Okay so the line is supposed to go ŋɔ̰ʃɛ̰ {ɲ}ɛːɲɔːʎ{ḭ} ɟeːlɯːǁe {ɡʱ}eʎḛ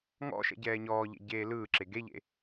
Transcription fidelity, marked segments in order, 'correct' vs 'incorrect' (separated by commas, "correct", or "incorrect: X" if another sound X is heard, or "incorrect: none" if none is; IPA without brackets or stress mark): incorrect: ɟ, incorrect: ḛ, incorrect: ɡ